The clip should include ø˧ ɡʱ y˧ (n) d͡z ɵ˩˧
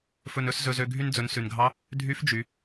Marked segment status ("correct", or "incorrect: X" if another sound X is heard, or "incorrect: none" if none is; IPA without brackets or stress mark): correct